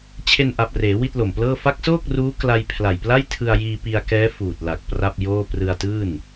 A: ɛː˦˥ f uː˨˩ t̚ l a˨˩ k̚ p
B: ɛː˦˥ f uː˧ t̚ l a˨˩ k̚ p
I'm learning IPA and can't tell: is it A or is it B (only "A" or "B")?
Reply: A